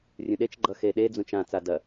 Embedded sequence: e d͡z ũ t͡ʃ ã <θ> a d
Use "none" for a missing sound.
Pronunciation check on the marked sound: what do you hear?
t͡s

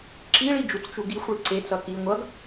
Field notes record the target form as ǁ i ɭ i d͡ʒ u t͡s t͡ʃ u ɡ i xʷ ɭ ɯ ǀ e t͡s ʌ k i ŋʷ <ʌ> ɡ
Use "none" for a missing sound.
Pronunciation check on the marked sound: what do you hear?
ʌ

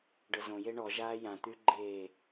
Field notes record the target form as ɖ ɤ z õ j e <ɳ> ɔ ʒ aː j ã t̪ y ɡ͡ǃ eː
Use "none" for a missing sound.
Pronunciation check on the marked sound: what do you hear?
ɳ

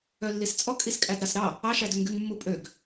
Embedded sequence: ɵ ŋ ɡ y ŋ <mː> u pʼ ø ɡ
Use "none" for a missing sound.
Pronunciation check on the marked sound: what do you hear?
mː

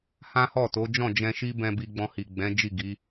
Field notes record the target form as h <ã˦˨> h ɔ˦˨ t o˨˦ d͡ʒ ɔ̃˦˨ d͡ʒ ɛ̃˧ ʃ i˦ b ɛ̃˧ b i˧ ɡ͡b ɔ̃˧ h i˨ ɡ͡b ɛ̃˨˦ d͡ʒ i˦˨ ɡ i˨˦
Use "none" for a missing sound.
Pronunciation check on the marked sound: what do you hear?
ã˦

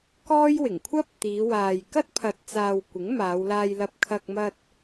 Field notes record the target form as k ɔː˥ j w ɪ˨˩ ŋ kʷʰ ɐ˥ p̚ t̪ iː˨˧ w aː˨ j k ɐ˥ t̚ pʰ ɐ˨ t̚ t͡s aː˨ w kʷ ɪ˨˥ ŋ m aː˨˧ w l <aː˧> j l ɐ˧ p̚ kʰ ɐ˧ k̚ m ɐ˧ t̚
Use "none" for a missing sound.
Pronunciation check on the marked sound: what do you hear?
aː˧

